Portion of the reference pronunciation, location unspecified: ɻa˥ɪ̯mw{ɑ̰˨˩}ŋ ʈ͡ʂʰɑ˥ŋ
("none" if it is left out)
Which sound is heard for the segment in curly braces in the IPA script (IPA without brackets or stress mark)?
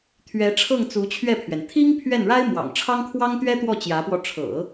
ɑ̰˨˩